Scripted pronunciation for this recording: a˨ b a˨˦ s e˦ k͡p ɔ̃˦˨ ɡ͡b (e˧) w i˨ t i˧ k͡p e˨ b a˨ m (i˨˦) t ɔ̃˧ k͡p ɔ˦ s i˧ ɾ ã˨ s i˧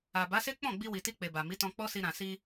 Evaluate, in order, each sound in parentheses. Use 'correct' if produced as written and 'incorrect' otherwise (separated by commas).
incorrect, correct